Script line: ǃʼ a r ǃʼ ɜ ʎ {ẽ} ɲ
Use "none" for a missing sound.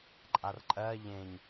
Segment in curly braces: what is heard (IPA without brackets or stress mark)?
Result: ẽ